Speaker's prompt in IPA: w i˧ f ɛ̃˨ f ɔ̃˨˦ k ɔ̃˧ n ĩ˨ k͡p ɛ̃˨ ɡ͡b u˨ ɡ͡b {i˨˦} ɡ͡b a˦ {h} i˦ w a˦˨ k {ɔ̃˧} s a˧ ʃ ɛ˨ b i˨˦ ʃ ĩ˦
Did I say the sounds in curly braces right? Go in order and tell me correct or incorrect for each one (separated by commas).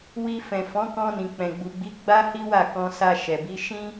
correct, correct, correct